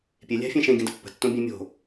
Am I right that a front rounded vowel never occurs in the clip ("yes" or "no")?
yes